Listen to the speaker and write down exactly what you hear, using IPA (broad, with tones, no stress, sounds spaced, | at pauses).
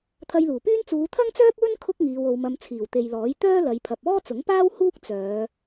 t̪ʰ ɐ˧ j l uː˨˩ p yː˥ n t͡s uː˨˧ t̪ʰ ɐ˥ ŋ t͡s œː˥ k̚ w ɵ˥ n kʰ ʊ˥ k̚ ŋ iː˨˧ w o˨˧ w m ɐ˧ m t͡sʰ iː˨˩ w t̪ e˨ j l ɔː˨˥ j t̪ œː˥ l ɐ˨˧ j pʰ ɐ˨ p̚ ɔː˥ t͡s ʊ˨˥ ŋ p aː˥ w h uː˥ k̚ t͡s œː˨˧